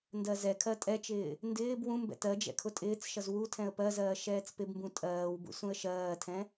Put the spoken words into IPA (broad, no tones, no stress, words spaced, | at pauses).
ndɜzɛkʰɜ tʼɛt͡ʃɪː | ndɪːb wũmbɛ̰ tɜ d͡ʒɛ̰kʰʊtʼɪːt͡sʃʌz wu tʰɛ̃ə̯pɜzɜː ʃɛːt͡spɪbmbũ tʼɜːwbṵ sũə̯ʃɜːtʰɛ̃